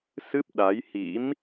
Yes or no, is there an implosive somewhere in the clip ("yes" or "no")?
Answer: yes